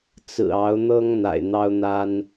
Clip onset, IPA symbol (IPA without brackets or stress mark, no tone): t͡s